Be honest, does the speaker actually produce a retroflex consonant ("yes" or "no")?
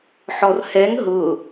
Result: no